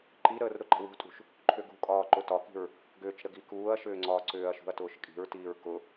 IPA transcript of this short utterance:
ǃ i ɾ əː r ɾ ʊ ǃ ə̤ w ṳ tʼ ṳ ʃ | ǃʰ ʏ ɡ ṳ kʼ ɒː ǃ ʊ t ɒ k i̤ ɹ | ɡ ʏː t͡ʃ ɾ ə ɡ i k uː ɐ̯ ʃ ʏː ŋ͡ǀ ɒː ǀ ʏː ɐ̯ ʃ ṳ ɐ̯ t ʊː ʃ kʼ i̤ ɹ t iː ɹ k ʊ

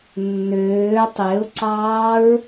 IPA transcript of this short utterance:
nː øː tˤ e ʊ̯ ǀ ɑː ɹ

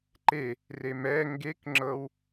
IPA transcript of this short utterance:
ǃ e | r e m ɛ ŋ ɡ e k ŋ͡ǁ ɤ w

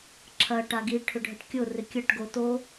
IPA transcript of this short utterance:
ǁʰ ɐ ʈ a ɡ i ʈʰ ʏ ɖʱ ə ʈ kʲ ʊ r ɪ kʲ ɐ ʈ ɡ o t o

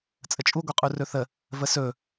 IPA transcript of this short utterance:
t͡sʼ ə t͡ʃʼ u ɡʷ e qʼ u r ɵ θ ə | v ə s ɵ

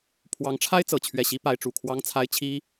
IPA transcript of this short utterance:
pʰ w ɑ˧˥ ŋ ʈ͡ʂʰ a˥ ɪ̯ t͡s ɤ˨˩ t͡ɕʰ ɥ ɛ˥˩ ɕ i˥ p a˧˥ ɪ̯ ʈ͡ʂ u˨˩ kʰ w ɑ˥ ŋ t͡sʰ a˥ ɪ̯ t͡ɕʰ i˥

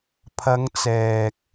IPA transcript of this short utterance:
pʰ ɐ˨˧ ŋ t͡s ɛː˨ k̚

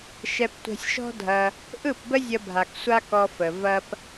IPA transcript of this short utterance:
ʃ ɛ˧ p tʷ ɛ̤˧ sʲ ʃ ɔ̤˦ dʱ ɐ˧ | ʔ ɯ˦˨ p b ə˦ zʲ ə˧ bʱ a˨ k sʷ a˦ k ɔ˧ f ə˨ v ɐ˦ p

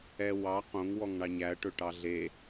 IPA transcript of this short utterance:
ɛ w ɑ q õ ŋ w ɔ ŋ ɳ ɑ ɲ æ ɐ̯ ʈ ɵ ʈ ɑ ɮ e

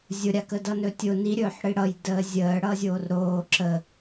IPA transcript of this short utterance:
zʲ ʊ ɾʲ a k ə d ʌ n ɵ tʲ ʊ n i ɾʲ ɵː ħ ɽ i ɽ ʌ j d əː zʲ əː ɽ ʌː zʲ oː r ɾ oː ǁ ə

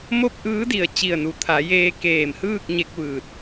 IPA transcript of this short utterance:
m o˥˨ p̚ ʔ ɯː˧˥ d i˧˩ ə̯ t͡ɕ i˧˩ ə̯ n u˩ t̪ʰ a˩˧ j eː˧ k eː˧˩ m h ɯː˥˨ k̚ ɲ e˧ k̚ ʋ ɯː˧˩ t̚

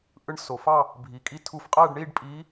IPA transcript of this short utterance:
ʔ ɯ˧˥ ɳ s o˩˧ f ɑ˥˧ | bʱ i˩˧ kʼ i˧ tʰ u˧ f qʼ æ˥˧ ɖ ɳ i˥˧ ɖ pʼ i˧˥

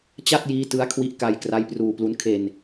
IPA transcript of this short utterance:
t͡ɕ a˥˩ t̚ j iː˦˥ t ɯ˦˥ a̯ kʰ w i˦˥ ʔ k a˧ j k r a˦˥ j p r uː˧ p l u˦˥ n kʰ e˧ n

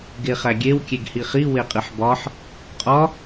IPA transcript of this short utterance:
ɡ e χ æ ɡʲ e w kʲ e ɡ h i χ i w e qʼ i ħ b ɒ ħ | qʼ ɒ

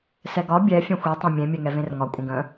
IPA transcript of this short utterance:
s ɛ ɡ ɒ bʲ ɛ fʲ ɛ̃ xʷ i tˤ ɛ̃ mʲ ẽ mʲ ɛ ŋ ɛ v ẽ r ŋ ɒ kʷʼ ə̃ ɡ ə̃

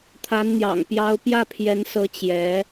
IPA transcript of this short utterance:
t̪ʰ a˧˥ n n̪ j ɑ̰˨˩ ŋ p j ɑ˥ ʊ̯ p j ä˥˩ pʰ j ɛ˧˥ n s ɤ˧˥ t͡ɕ j ɛ˧˥

